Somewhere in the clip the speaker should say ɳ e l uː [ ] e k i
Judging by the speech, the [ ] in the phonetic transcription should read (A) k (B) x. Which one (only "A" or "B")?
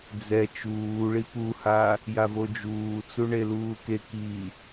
A